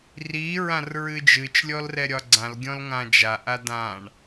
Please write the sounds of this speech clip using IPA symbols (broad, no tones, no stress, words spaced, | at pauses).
ri ɹãrɹɨd͡ʒɨt͡ʃ lʲɔlrɛɾʲɒɡ͡ǀãl ɡʲɔ̃lŋãd͡ʒa ʔadãɳ